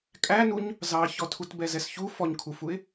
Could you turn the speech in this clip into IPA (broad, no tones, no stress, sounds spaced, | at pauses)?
kʼ æ n u ɲ | z ɑ ç ɔ tʰ u t b ɛ z ɛ s ç u f ɔ ɲ kʰ u f u ɪ̯